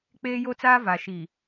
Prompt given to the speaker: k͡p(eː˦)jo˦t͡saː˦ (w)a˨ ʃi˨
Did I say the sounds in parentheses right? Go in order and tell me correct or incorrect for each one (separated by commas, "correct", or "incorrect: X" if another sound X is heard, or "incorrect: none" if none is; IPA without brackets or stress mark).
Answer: correct, incorrect: v